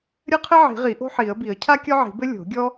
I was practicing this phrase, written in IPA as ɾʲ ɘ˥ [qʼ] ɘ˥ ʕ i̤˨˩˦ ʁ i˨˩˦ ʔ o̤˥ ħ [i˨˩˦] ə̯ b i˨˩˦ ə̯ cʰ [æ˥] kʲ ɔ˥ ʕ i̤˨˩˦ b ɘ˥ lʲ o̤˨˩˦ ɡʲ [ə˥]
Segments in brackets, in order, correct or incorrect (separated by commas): incorrect, correct, incorrect, incorrect